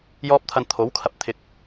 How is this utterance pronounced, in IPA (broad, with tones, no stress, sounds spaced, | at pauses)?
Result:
j ɔː˧ p̚ t̪ʰ ɐ˨ n t̪ʰ o˨˥ w kʰ ɐ˨ p̚ t̪ʰ ɪ˨ k̚